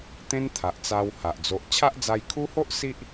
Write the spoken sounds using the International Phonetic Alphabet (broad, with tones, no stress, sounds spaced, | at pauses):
t̪ ẽ˦ n t̪ʰ a˨ ʔ t͡s a˧ w h a˨ ʔ d͡z o˨ ʔ t͡ɕʰ a˦ ʔ d͡z a˧ j kʰ u˦ h o˦ ʔ s i˦ ʔ